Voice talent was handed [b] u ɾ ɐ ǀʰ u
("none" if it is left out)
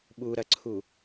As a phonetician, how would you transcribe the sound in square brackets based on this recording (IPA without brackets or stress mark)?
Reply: ɓ